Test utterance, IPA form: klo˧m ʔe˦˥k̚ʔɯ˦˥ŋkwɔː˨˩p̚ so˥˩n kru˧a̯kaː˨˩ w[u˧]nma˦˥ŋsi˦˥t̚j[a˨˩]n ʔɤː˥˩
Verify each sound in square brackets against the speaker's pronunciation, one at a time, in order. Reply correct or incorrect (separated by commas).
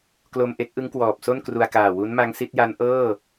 incorrect, incorrect